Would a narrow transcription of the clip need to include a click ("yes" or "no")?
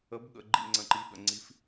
yes